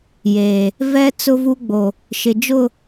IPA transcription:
j eː˨ | v ɛ˦ t͡s ʊ˦ v u˦ ɡ͡b o˨ | ʃ ɪ˨ d͡ʒ ʊ˦˨

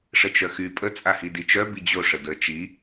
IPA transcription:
ʂ ə t͡ʃ œ x y pʼ ə t͡sʼ a h i d i t͡ʃ œ b i d͡ʑ o ʂ ə d ə t͡ʃ i

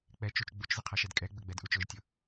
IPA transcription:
k͡p ɛ t͡ʃ u t͡ʃ ɡ͡b u t͡ʃ z ə qʰ ʌ ʃ ɛ d kʼ ɛ ɡ͡b ə ɡ͡b ɛ d ʔ u t͡ʃ ʊ ʒ tʲ ʊ

